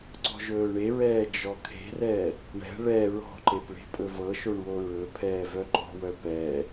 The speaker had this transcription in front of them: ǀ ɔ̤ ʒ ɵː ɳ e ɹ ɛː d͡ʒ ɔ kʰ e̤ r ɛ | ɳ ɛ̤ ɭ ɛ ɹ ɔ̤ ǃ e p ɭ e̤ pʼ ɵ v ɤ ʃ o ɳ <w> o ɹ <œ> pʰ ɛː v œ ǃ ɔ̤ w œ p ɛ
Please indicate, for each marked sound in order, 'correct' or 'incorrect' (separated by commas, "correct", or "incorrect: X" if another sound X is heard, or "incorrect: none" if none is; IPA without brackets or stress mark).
correct, incorrect: ɵ